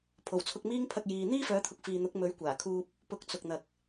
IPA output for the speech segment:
pʰ o˨˩ w t͡sʰ ʊ˧ k̚ m iː˥ ŋ pʰ ɐ˧ k̚ j iː˨ n̪ iː˥ f œː˨˥ t̪ʰ ʊ˨ k̚ f iː˨ n̪ ʊ˨˥ k̚ m ɵ˨˥ ɥ kʷ aː˨˩ kʰ uː˧ p̚ | p ʊ˧ k̚ t͡s ʊ˨ k̚ n̪ ɐ˨ k̚

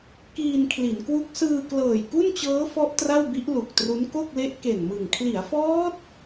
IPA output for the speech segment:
k iː˧ n kʰ l i˩˦ n k w u˦˥ k̚ s ɯː˧ k l ɤː˨˩ j k u˥˩ n t͡ɕ ɤː˦˥ f ɔ˦˥ ʔ t r a˥˩ w b i˦˥ ʔ l u˨˩ k̚ t r u˦˥ n k o˥˩ k̚ l e˦˥ ʔ k e˨˩ n m ɯ˨˩ ŋ kʰ l i˩˦ a̯ f ɔː˦˥ t̚

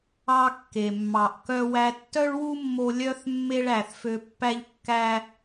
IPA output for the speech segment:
ɑ˧ kː e˩ mː ɑ˩ ʔ k œ˧ w æ˧ tː œ˥ ɭ w u˥ mː o˧ lʲ œ˧ θ mː e˥ ɭ æ˩ θ f ø˧ pː æ˥ ʎ kː æ˥

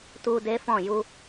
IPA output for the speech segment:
t u˧ d e˦ f ɔ̃˦˨ j u˧

